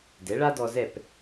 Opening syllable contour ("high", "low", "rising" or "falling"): rising